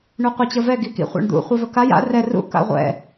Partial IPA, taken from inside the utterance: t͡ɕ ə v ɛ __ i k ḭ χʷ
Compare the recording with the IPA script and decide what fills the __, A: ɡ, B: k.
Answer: A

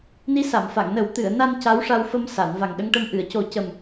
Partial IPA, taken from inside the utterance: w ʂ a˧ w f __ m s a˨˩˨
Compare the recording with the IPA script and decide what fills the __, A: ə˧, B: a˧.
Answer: A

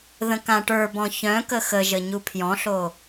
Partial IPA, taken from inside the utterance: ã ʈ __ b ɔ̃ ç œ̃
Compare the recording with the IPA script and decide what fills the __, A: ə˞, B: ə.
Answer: A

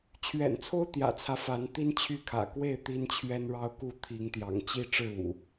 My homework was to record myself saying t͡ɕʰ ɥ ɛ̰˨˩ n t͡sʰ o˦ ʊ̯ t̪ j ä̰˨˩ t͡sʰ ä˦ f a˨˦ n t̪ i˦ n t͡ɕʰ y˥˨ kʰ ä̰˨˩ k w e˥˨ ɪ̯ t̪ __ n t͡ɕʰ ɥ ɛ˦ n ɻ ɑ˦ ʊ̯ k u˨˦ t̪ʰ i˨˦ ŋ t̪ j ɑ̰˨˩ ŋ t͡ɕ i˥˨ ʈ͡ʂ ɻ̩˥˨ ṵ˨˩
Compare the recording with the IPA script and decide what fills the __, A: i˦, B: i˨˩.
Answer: A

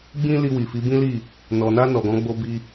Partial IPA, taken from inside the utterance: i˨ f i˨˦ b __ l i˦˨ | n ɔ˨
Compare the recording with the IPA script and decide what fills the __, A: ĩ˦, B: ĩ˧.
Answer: A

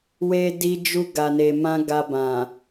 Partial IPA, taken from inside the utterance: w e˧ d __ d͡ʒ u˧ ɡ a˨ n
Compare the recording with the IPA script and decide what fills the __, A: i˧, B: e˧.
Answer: A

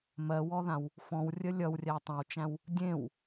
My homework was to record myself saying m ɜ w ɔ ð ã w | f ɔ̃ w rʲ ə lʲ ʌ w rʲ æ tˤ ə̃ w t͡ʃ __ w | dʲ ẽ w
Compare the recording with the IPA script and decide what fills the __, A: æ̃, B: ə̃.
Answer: A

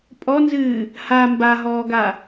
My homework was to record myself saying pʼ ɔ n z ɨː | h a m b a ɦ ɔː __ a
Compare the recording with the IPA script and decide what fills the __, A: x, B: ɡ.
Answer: B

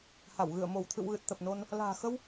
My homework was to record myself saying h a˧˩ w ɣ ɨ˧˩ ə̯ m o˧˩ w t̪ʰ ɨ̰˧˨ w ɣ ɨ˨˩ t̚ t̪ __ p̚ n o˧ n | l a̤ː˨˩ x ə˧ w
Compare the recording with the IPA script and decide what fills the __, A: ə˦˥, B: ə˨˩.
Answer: B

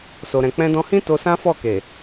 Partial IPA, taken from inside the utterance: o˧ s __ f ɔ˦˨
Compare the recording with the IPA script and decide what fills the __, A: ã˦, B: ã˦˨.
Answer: A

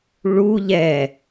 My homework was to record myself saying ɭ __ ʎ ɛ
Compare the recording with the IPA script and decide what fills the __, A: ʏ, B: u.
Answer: B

